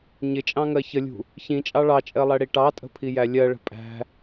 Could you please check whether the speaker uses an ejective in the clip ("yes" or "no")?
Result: yes